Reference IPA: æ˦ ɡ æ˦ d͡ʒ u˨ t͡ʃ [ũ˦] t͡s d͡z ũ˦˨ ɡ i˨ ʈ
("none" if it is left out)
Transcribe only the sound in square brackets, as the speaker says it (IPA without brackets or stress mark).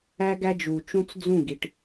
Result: ũ˦